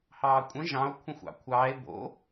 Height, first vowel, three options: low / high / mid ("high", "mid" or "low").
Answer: low